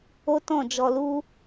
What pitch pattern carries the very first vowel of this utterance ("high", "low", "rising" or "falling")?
high